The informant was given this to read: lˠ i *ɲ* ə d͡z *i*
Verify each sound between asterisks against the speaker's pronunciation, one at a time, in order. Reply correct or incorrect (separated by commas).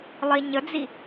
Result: correct, correct